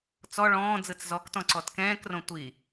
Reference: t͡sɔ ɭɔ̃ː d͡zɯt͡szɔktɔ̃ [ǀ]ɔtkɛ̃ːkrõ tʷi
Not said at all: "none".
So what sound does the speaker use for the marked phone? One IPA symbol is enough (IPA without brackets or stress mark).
ǀ